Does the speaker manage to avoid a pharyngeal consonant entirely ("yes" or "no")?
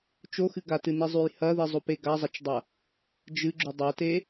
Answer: yes